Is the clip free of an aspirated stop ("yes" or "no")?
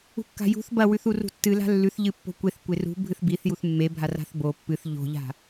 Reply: yes